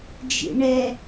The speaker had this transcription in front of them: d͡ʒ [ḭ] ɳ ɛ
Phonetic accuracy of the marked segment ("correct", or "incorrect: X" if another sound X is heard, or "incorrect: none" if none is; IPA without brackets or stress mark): correct